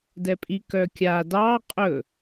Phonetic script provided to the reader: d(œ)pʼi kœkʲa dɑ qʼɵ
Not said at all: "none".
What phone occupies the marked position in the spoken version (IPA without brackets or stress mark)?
ɛ